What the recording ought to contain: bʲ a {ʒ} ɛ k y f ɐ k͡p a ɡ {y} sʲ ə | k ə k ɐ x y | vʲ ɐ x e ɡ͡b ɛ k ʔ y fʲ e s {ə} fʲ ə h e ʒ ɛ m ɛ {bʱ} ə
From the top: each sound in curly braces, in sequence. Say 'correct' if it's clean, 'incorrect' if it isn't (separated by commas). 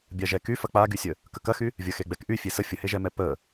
correct, correct, correct, incorrect